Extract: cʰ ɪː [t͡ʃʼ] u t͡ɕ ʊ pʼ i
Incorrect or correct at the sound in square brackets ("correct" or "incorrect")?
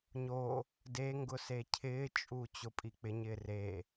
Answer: correct